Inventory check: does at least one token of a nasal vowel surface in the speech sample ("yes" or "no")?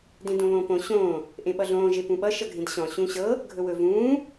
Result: yes